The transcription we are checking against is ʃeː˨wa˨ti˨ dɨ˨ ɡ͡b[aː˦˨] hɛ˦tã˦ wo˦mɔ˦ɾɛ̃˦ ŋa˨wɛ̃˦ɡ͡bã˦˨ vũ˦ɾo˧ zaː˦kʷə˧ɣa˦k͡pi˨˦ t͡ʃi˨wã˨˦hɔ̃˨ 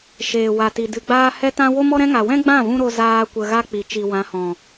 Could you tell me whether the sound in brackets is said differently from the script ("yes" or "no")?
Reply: yes